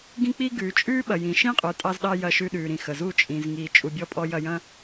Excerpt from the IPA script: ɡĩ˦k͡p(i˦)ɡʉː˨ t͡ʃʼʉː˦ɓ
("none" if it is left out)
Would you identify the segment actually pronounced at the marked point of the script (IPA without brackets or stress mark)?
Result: i˦